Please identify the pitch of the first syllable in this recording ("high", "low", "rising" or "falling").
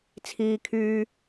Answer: low